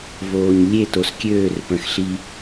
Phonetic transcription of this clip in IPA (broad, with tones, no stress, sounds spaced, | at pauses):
v oː˨ ɲ lʲ e˦˨ t o˨ s kʲ øː˦˨ r p ə̃˨ x ɬ i˦